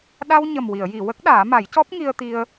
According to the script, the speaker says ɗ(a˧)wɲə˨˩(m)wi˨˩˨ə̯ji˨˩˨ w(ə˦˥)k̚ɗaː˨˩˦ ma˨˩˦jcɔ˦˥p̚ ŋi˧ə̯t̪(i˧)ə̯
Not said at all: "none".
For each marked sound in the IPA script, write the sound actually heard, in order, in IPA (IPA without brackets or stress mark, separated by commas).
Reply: a˧, m, ə˦˥, i˧